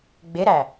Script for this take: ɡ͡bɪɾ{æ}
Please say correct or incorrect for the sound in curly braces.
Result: correct